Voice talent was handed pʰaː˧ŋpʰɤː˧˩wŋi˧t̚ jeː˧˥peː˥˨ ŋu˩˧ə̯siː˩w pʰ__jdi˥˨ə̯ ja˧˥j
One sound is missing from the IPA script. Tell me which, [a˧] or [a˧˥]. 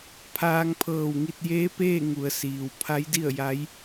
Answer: a˧˥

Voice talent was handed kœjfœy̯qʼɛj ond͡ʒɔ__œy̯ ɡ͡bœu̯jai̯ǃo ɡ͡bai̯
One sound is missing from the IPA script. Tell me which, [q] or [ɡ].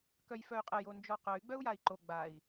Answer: q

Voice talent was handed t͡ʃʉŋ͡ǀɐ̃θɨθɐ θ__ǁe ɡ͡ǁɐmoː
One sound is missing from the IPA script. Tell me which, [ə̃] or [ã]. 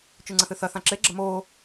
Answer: ã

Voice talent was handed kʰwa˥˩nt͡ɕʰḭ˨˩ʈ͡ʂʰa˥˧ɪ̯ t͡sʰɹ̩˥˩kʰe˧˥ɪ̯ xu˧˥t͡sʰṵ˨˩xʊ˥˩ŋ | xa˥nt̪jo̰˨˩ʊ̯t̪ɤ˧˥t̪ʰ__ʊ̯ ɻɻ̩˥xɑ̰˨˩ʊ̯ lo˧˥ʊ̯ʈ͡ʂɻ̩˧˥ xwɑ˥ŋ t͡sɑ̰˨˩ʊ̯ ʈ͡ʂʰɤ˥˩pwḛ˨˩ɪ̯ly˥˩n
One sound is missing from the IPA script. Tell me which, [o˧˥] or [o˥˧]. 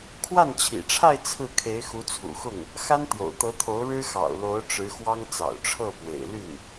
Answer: o˧˥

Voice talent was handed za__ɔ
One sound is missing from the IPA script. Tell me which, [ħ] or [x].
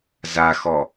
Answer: x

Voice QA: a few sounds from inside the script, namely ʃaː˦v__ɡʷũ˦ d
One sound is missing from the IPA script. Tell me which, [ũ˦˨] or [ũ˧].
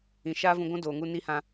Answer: ũ˧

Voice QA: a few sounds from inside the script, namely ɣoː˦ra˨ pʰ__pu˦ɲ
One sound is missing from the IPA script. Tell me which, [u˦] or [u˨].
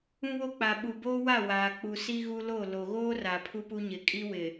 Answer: u˦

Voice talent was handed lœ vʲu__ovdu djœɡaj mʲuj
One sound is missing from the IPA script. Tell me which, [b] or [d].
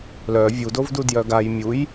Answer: d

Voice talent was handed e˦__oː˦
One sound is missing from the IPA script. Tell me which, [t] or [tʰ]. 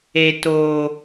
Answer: t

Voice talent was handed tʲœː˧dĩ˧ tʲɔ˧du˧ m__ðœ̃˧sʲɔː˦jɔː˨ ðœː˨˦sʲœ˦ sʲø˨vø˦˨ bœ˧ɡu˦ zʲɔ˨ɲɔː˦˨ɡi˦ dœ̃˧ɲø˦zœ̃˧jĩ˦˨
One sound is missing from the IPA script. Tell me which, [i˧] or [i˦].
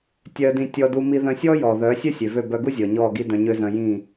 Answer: i˧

